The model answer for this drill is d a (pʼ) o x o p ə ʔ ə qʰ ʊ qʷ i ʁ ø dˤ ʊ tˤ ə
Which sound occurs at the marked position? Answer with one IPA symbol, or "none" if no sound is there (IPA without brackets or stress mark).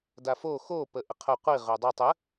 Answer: f